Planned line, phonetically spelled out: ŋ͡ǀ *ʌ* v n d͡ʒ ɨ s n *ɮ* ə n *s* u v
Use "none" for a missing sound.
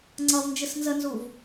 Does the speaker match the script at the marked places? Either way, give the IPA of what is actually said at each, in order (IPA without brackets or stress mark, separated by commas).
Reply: ʌ, z, z